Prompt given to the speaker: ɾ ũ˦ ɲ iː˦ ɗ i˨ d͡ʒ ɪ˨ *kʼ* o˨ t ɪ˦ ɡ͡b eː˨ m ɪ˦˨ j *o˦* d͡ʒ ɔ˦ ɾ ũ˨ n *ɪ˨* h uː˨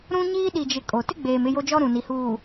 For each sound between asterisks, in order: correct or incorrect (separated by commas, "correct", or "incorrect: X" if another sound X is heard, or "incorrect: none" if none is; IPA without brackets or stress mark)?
correct, correct, incorrect: i˨